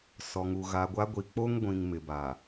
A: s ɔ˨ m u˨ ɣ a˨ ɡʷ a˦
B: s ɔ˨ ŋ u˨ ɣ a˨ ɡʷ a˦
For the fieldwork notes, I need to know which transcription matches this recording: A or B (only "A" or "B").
B